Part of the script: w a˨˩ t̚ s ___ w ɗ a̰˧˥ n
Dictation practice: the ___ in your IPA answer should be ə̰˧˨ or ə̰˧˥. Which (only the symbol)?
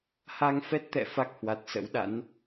ə̰˧˥